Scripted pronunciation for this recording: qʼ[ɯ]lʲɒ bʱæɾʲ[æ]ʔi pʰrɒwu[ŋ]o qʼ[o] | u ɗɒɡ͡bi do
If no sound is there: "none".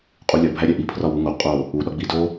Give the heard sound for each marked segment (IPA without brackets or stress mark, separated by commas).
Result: u, æ, ŋ, o